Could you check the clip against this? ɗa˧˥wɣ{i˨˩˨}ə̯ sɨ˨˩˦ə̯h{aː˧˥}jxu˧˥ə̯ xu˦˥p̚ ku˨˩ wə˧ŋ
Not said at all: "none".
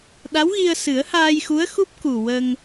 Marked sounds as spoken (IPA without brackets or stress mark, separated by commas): i˧, aː˧